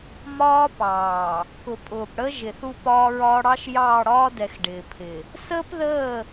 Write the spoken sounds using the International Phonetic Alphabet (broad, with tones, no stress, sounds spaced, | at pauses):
m ɒː˦ p ɑː˨ | k ʊ˨ pʼ ʊː˨ p ɽ ə˦ ʒ ɪ˨ θ u˦ p ɒː˦ ɹ ɒː˦ ɽ ɑ˦ ʃ j ɑː˦˨ ɽ ɒː˦ d ɛ˨ x ɖ ɪː˨ pʰ ɪ˨ | s əː˦ p ð əː˦˨